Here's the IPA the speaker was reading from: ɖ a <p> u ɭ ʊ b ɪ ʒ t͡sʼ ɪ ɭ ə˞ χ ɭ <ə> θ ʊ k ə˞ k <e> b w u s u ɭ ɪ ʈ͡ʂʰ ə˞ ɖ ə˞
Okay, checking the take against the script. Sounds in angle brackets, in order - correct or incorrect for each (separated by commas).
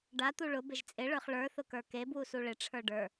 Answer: incorrect, incorrect, correct